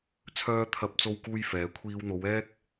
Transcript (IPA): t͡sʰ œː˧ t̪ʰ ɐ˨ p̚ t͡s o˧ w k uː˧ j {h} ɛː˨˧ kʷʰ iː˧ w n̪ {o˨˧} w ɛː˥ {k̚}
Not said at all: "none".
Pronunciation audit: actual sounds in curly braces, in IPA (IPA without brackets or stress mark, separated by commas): f, o˨˧, k̚